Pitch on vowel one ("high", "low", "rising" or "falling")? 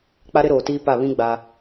high